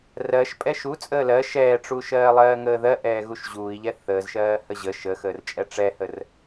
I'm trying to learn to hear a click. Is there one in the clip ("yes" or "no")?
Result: no